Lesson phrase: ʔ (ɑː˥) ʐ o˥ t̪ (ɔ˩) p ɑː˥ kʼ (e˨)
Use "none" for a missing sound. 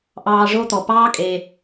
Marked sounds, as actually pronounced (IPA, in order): ɑː˦, ɔ˨, e˨

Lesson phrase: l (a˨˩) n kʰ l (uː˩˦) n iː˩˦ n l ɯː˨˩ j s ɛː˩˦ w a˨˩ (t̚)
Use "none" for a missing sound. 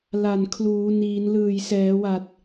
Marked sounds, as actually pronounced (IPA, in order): a˨˩, uː˩˦, t̚

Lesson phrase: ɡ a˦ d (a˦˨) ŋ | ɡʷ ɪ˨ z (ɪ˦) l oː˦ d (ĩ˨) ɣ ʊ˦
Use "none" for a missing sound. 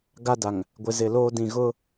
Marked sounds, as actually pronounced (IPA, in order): a˨, ɪ˨, ĩ˨

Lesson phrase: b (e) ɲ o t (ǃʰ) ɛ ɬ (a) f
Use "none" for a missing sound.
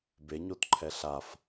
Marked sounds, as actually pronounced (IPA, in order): e, ǃʰ, a

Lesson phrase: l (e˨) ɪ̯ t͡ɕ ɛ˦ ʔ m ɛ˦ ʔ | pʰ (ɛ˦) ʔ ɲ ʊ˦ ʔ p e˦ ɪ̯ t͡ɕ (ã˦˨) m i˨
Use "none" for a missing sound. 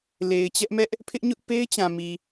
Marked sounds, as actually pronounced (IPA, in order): e˨, ɪ˦, ã˨

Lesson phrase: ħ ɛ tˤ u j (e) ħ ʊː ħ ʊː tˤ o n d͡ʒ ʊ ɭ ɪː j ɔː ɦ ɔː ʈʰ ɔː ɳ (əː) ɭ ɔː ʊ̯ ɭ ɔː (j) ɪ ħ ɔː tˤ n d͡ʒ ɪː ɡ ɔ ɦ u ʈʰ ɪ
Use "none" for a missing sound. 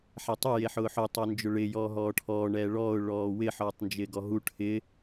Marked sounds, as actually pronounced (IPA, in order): e, ɛː, w

